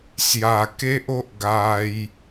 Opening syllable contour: low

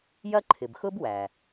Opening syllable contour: high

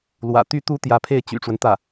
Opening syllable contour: low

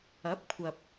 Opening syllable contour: rising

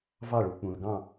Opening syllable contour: falling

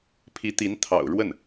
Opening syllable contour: rising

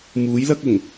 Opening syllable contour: rising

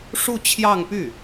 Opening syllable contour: falling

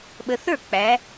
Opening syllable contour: low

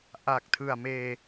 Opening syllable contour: low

